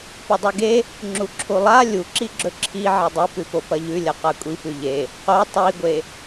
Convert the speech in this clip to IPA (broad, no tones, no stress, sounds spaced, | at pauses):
p ɵ dˤ ʉ ɡ e | ŋ͡ǁ u ǁʰ u lˠ a lʲ u ǁ i ɡ͡ǁ ɵ ǁʰ i ʕ e dˤ i p ʉ p o p ɐ ʎ ʉ lʲ ɐ q a kʷʼ i p ʉ ʎ e | q o tˤ i ɡʷ e